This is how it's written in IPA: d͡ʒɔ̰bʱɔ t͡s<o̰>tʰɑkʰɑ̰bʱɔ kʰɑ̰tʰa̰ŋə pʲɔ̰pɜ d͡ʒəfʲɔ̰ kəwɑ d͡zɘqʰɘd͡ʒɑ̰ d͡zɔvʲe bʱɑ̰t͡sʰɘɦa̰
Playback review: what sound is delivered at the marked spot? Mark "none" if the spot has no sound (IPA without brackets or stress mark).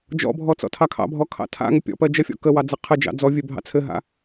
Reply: ɔ̰